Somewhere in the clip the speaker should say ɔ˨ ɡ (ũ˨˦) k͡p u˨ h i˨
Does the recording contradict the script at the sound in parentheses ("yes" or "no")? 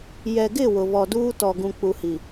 yes